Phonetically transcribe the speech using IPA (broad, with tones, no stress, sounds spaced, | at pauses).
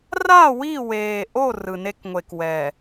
r a˦˨ w i˦˨ w eː˨ ʔ o˦˨ r ɯ˨ n e˦ k ŋʷ e˨ k w ɛ˨